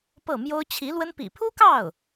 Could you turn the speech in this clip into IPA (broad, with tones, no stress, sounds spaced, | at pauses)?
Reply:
p ɤ˥˩ m j o˥ ʊ̯ t͡ɕʰ i˧˥ l w ə˥ n p ḭ˨˩ pʰ u˥ k ɑ˥˩ ʊ̯